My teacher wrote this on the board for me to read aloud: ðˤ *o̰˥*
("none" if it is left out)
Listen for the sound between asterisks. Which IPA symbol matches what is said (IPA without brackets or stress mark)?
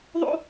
o̰˥